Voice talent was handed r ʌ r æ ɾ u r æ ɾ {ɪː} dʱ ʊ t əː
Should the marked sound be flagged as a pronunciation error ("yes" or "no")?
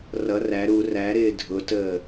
no